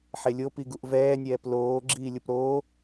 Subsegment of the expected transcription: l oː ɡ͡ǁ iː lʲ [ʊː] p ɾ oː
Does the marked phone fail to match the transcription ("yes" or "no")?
yes